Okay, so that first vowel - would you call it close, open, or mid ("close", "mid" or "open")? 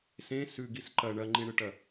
mid